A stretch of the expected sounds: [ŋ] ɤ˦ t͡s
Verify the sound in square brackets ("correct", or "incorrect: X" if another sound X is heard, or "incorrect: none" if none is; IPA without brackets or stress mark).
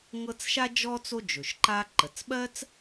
correct